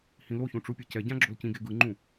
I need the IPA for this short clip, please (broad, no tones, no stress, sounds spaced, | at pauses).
h ĩ l o ç ũ ʈ͡ʂ u pʲ ɛ c ɛ ɟ ã ɡ͡ǁ o l c ĩ ɡ e ɡ ɯ ŋ͡ǃ ũ